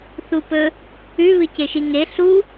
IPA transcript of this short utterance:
θ u p ɵ | ʉ β ɨ c e ʃ i ŋ e ɬ u

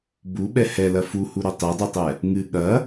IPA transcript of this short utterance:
b u ɓ ɛ h ɛ l ɐ f u h u ɾ o tˤ e dˤ u tˤ ɛ | ŋ ɨ ɠ ɐ

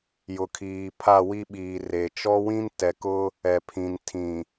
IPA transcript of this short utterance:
j ʊ˨ kʰ iː˨ pʰ a˦˨ w i˦ ɓ iː˨ r e˨ t͡ʃ ɔ˦ w ĩ˦ n t ɛ˨ k ʊ˦ | ɛ˨ pʰ ĩ˨ n tʰ ĩ˨

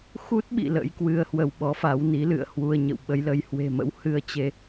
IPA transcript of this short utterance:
x u˦˥ t̚ ɓ ḭ˧˨ l ə̰˧˥ j k w ɨ˧ ə̯ h w ə˧ w ɓ ɔ˨˦ f a˨˦ w n i˨˦ l ɨ̰˧˨ ə̯ h w u˧ ə̯ ɲ ə̰˧˨ w ɓ ə˨˦ j l ə˨˦ j h w e̤˨˩ m ə̰˧˥ w h ɨ˧ ə̯ t͡ɕ e˧

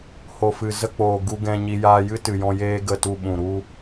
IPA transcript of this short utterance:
h o˨ f ɨ˨ z ə˧ k͡p oː˨ ɡ u˧ ɡ ɛ̃˧ ɲ i˧ j aː˧ j ɨ˦ t ɨ˨ j ɔ̃˧ j eː˧ ɡ ə˦˨ t u˧ ɓ ũ˨ ɾ u˧

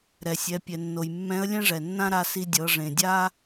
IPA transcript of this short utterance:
ɾ ɛ˩ sʲ ɛ˩˧ pʲ ɛ˩ nː o˩ j mː ɛ̃˧˥ ə̯ lʲ ɛ̃˥ ʐ ɛ˩ nː ã˥ ɾ a˧ s i˧ dʲ ɤ˩˧ ʐ ẽ˩ dʲ a˥

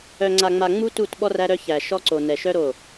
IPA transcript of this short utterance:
œ˨ ŋ͡ǀ a˨ ŋ͡m a˨ ŋ͡m u˦ t u˦˨ t ɓ ɔ˦ r æ˦ ɾ œ˦ ç æ˨ ʃ ɔ˦ ǀ o˨ n ɛ˨ ʃ œ˦ ɾ o˦˨

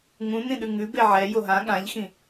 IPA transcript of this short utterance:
ŋ ũ n ĩ ɗ ʉ ŋ ʉ b e ʕ ɛ j o ɦ ã ɠ ã ʎ x ĩ

